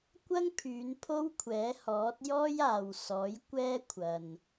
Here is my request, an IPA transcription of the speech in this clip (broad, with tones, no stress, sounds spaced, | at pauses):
kʷ ɐ˥ ŋ pʰ yː˨˧ n pʰ o˥ w kʷʰ ɛː˨˥ h ɔː˨˥ t̚ j ɔː˥ j aː˨ w s ɔː˨˥ j kʷ ɛː˥ kʷʰ ɐ˨ n